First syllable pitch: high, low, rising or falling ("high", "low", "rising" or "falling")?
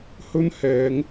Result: high